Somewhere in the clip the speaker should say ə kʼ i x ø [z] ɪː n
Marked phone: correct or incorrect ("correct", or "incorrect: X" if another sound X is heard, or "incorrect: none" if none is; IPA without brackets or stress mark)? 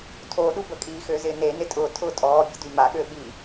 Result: correct